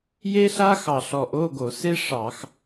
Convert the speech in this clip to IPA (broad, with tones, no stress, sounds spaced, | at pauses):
j e˥ ɬ a˥ x ɑ˧˩ ɬ ɔ˧˩ ʔ o˧˥˧ ɡ o˧˩˧ s e˥ ʂ ɑ˧˩˧ x